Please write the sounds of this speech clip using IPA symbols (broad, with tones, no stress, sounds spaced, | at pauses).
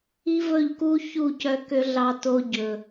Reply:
i˦ v ɵ˦˨ ʎ k u˦ ç u˦˨ c œ˧ k ø˧ ɮ ɑ˧ t o˧ ɟ ɵ˨